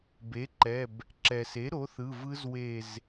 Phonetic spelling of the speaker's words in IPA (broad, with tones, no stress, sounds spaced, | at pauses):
b e˩˥ ǃ ɛ˩˧˩ b | ǁ ɛ˩ s e˩˥ ɾ o˩˥ θ ɯ˩˧˩ v ɯ˦˥ z w e˧˩ z